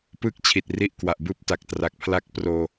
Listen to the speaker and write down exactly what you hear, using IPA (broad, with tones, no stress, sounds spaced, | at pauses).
p ɯː˦˥ k̚ t͡ɕʰ i˨˩ t̚ r i˦˥ ʔ k w a˨˩ ʔ b ɯː˦˥ p̚ t a˨˩ k̚ t r a˨˩ k̚ pʰ l a˦˥ k̚ p r oː˧